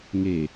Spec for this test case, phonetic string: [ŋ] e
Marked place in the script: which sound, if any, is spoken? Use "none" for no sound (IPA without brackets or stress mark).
ŋ